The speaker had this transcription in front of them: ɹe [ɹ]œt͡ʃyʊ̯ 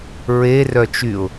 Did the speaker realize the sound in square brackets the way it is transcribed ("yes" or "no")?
no